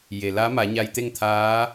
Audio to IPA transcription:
je˩la˧˥ ma˩˧ɲa˧jt̪e˥˨ŋt̪ʰaː˧˥

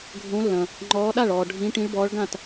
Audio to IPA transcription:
ɡʱõ˨˦lːɐ̃˩ | ŋ͡ǃɔː˨˦ɗa˥˩ɭɔː˩ ɖʱĩ˨˦ ʈĩ˨˦ɭbɔː˨˦ɭ ɡã˥˩t

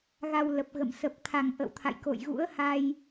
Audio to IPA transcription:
ɣa˧wlə˨˩p̚ɣə̰˧˨m sə˨˩p̚t̪ʰa˨˩ŋ ʔə̰˧˨wt̪ʰa̰˧˨jko̰˧˨j ɣṵ˧˥ə̯ha˧j

